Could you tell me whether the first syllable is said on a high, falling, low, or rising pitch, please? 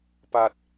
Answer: low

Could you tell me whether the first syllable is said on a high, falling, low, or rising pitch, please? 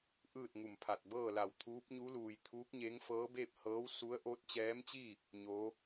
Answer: falling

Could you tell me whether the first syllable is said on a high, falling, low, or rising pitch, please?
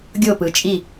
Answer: falling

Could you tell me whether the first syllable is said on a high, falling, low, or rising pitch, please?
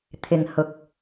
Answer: low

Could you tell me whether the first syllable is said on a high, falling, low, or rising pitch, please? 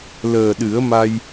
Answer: low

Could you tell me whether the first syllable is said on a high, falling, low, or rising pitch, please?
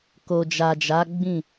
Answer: low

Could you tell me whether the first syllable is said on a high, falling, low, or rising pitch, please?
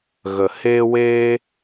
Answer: low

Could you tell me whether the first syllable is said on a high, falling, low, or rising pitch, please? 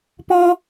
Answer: high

